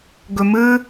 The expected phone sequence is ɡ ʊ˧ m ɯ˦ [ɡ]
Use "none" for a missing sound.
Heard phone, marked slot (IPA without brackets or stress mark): none